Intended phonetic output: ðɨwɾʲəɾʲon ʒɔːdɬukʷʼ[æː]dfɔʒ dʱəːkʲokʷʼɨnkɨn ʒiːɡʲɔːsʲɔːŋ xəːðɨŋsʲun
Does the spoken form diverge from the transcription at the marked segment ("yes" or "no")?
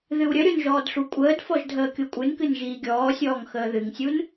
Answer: yes